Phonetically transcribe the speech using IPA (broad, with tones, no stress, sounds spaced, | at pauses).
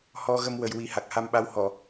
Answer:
h ɔ˧ ɣ ə˧ m w ə˨˩ j w i˨˩˦ h a˨˩ k̚ h a˧ m ɓ a˧˥ w h ɔ˨˩˨